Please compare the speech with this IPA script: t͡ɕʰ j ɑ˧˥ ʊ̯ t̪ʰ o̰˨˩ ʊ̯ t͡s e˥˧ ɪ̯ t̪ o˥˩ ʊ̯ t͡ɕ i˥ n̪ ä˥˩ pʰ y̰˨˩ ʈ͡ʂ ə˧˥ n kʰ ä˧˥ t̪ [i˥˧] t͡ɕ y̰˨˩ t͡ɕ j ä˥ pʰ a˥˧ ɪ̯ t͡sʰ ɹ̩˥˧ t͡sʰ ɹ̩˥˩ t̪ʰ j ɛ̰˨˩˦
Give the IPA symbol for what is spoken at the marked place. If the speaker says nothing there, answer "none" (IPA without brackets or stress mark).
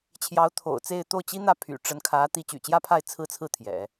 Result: i˧˥